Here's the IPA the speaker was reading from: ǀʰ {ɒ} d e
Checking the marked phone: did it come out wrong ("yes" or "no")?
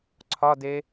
no